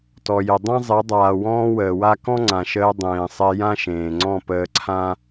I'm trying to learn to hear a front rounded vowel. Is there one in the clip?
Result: no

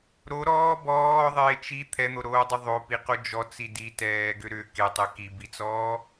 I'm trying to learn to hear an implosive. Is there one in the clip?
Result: no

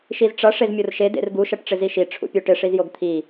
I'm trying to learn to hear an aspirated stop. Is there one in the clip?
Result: yes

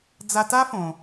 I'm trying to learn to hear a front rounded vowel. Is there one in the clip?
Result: no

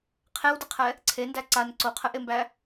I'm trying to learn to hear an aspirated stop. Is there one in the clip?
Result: yes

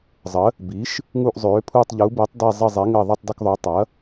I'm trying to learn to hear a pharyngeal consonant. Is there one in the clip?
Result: no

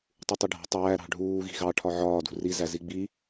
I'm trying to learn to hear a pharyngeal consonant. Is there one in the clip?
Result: yes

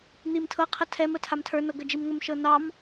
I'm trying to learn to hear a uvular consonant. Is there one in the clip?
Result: yes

